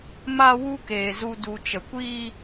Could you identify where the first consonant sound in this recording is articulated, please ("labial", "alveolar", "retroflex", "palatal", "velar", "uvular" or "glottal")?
labial